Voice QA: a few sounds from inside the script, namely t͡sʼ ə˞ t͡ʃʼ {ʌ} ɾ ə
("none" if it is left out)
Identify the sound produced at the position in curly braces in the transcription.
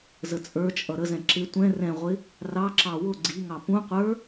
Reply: ʌ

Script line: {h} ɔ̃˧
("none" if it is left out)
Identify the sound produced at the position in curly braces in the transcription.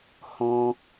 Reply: h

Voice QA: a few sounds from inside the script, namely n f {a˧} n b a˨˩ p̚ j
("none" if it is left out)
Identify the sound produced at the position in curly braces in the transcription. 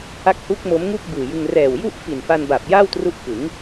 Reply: a˧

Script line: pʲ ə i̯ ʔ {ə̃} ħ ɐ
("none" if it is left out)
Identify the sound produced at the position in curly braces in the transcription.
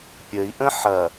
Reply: ə̃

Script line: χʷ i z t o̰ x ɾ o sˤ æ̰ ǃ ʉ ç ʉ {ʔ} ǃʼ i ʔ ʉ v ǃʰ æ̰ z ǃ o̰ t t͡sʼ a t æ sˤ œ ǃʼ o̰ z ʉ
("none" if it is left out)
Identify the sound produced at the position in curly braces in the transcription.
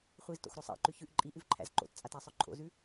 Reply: ʔ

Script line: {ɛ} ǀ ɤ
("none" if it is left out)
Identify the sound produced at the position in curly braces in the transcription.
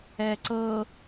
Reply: ɛ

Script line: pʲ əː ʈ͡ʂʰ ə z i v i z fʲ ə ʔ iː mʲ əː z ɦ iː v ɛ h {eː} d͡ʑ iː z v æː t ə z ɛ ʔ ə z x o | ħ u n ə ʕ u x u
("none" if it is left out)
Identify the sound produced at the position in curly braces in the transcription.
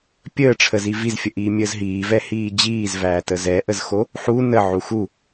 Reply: iː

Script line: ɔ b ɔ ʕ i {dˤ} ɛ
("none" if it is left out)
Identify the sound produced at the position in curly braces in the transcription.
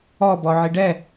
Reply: ɖ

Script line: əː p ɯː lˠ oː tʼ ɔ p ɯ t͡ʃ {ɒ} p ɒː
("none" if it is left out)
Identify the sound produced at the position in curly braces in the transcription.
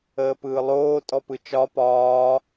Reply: ɒ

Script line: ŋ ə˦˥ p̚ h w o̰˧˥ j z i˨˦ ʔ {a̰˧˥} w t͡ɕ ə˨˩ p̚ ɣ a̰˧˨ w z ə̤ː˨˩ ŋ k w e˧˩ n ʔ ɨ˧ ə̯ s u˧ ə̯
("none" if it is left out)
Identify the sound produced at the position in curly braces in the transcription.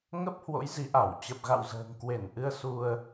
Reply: a˧˩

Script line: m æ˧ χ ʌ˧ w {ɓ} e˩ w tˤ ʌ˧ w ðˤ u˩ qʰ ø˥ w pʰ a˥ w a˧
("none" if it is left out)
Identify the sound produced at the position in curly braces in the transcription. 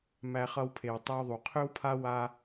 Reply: pʰ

